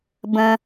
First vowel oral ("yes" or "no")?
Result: no